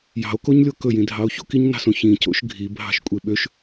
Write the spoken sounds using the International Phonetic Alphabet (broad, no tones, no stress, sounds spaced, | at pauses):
j ɑ̤ o̯ k o ɲ lʲ o k ɵ j ĩ dʱ ɑ o̯ ç o̰ k i ɲ n ɑ̤ s õ ç ĩ c o̰ ʃ ɡʱ i bʱ ɑ̤ ʃ kʷʼ e ɓ ø ʃ